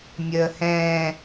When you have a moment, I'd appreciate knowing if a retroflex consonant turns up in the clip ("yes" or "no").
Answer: no